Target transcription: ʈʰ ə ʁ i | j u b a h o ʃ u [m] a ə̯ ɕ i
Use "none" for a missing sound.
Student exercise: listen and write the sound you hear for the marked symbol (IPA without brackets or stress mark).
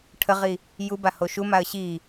m